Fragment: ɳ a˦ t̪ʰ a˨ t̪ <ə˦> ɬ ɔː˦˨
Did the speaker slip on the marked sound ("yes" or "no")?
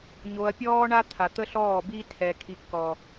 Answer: no